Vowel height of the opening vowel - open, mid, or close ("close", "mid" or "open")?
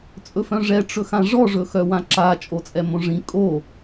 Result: mid